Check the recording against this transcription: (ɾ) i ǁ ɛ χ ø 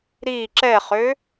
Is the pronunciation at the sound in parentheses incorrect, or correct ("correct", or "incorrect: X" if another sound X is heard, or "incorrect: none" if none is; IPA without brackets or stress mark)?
correct